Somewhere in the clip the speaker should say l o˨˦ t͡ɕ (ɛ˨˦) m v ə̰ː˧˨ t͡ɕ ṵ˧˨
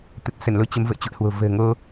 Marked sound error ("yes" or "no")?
yes